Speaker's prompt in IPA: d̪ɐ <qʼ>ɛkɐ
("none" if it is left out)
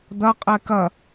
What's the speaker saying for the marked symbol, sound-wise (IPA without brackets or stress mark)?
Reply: qʼ